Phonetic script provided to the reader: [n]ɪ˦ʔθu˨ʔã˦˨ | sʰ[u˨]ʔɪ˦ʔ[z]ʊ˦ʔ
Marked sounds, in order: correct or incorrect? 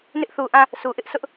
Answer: correct, correct, incorrect: s

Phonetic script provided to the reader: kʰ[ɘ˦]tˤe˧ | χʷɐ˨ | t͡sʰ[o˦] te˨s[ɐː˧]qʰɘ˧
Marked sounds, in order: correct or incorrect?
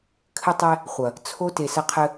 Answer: incorrect: ɘ˧, correct, incorrect: ɐ˧

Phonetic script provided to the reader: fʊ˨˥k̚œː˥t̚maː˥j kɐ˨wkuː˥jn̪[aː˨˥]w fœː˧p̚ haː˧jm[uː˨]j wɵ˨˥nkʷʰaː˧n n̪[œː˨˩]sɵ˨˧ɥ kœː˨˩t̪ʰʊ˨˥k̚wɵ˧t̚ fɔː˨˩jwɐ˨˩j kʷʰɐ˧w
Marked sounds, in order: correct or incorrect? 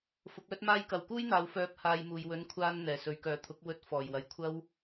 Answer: incorrect: aː˨˧, correct, incorrect: ɛː˨˩

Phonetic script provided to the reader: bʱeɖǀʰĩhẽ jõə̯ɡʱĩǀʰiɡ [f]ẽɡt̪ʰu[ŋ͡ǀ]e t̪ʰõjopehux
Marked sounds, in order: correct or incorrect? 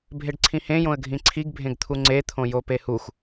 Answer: incorrect: bʱ, correct

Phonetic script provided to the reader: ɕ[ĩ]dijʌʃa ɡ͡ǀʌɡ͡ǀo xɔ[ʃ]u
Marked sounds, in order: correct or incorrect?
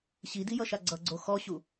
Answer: incorrect: i, incorrect: ɕ

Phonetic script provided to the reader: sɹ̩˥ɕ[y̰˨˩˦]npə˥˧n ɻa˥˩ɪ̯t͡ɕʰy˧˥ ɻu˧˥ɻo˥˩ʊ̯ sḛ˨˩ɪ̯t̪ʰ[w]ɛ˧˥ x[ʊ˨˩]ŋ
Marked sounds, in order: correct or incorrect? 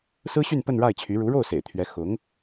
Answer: incorrect: y˥˧, incorrect: ɥ, incorrect: ʊ˧˥

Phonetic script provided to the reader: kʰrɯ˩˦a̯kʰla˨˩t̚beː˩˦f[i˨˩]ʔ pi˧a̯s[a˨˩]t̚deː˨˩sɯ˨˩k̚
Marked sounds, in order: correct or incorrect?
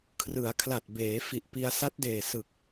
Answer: correct, incorrect: a˦˥

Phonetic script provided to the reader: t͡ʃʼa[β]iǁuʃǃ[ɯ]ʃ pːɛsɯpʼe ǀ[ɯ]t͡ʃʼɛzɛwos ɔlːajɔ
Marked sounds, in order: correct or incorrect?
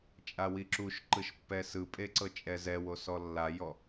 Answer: incorrect: w, correct, incorrect: ɤ

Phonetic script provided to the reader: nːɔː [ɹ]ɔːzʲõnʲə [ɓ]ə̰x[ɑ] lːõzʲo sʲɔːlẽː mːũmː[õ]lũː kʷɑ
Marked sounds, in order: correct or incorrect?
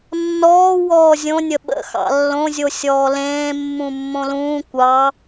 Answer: incorrect: w, correct, incorrect: ɑ̰, correct

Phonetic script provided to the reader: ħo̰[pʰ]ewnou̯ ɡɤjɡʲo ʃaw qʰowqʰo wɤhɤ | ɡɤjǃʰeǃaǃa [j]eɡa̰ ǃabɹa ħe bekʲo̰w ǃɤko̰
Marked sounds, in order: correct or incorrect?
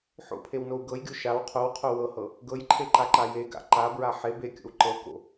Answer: correct, correct

